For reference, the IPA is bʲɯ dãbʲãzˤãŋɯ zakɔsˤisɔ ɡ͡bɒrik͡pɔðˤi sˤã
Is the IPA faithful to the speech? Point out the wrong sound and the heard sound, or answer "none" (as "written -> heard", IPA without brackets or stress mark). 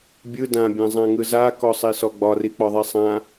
none